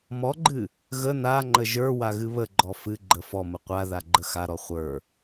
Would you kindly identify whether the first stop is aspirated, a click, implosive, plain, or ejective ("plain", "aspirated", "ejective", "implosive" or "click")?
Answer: click